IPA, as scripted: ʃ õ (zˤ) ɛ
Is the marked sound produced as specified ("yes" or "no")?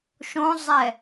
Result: yes